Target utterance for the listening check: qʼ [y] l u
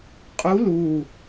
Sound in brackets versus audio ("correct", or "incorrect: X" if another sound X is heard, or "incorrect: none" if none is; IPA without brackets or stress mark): incorrect: u